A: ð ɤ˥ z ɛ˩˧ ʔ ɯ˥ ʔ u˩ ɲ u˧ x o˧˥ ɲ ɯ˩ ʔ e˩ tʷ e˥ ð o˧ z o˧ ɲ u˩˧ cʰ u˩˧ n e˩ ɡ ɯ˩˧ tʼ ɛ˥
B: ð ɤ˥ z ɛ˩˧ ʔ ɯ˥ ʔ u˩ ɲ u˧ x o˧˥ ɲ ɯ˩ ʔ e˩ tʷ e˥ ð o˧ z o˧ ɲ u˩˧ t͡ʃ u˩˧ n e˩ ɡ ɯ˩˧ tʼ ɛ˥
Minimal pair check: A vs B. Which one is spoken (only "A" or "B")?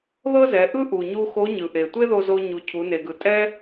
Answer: A